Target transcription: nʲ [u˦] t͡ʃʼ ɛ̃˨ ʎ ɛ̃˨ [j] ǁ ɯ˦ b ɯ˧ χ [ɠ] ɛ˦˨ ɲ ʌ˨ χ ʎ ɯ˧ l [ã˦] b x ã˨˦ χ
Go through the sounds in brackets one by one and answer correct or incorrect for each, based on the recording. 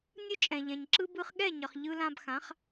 incorrect, incorrect, correct, incorrect

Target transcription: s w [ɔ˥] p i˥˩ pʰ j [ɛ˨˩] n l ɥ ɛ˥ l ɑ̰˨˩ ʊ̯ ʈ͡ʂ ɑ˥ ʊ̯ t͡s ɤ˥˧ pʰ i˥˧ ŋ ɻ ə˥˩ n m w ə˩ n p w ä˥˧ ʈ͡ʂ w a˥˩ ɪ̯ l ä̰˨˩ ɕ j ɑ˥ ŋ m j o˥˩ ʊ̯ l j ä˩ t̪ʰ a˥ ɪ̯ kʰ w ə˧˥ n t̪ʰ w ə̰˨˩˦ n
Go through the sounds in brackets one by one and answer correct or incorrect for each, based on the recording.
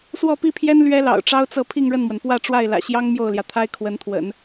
incorrect, incorrect

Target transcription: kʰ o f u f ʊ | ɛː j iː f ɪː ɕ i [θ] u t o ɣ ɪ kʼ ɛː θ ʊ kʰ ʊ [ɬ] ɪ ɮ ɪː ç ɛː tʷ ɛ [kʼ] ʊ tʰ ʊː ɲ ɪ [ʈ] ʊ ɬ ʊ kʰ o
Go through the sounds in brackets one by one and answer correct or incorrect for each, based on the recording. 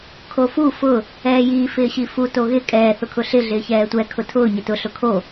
incorrect, correct, incorrect, incorrect

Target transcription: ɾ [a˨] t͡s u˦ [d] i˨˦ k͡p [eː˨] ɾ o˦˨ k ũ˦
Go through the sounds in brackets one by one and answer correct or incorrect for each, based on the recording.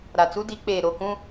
correct, correct, correct

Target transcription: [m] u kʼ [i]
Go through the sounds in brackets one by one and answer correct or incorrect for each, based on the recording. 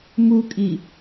correct, correct

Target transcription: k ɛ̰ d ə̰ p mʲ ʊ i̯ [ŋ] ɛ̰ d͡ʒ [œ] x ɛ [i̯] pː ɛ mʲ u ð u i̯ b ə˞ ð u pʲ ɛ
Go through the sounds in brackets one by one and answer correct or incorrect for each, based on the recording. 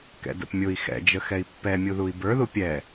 incorrect, incorrect, correct

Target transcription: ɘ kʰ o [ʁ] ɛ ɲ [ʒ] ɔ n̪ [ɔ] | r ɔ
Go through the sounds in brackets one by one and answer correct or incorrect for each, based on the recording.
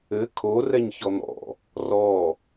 incorrect, incorrect, incorrect

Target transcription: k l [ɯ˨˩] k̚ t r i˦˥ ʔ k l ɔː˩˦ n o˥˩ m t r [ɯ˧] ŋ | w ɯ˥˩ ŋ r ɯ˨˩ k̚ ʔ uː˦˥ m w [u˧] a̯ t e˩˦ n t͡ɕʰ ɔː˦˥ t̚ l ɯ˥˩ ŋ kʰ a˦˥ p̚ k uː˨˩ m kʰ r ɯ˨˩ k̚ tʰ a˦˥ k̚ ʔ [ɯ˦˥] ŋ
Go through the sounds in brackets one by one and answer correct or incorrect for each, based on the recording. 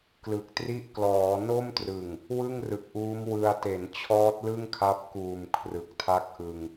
correct, incorrect, incorrect, incorrect

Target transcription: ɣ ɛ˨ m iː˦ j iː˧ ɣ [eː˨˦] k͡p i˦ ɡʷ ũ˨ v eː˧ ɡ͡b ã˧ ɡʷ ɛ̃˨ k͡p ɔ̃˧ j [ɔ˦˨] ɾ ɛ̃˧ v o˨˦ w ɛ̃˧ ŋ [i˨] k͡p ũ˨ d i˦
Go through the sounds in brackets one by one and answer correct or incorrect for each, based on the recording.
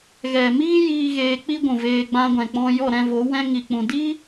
incorrect, correct, correct

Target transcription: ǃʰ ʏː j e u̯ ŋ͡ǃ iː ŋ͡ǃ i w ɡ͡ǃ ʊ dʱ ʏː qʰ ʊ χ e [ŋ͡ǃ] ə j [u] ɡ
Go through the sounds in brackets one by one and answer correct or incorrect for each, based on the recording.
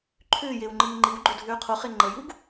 correct, correct

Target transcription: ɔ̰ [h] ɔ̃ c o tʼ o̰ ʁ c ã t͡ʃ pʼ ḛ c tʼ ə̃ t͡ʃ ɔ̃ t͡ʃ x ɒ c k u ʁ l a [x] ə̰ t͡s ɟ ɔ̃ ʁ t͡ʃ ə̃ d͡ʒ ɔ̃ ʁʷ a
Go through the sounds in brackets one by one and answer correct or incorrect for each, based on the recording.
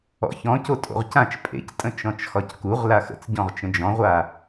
incorrect, correct

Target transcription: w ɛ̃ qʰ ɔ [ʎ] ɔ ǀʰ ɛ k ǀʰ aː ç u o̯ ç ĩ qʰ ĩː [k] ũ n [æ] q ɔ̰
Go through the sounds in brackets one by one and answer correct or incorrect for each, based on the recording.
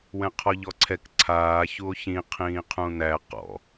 correct, incorrect, correct

